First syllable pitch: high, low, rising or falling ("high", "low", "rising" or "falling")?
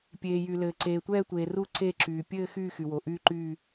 low